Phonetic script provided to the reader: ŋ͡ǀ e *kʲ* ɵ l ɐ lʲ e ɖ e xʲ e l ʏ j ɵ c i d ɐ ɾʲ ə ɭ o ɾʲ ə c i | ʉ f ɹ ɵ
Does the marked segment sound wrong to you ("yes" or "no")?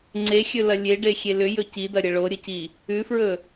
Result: yes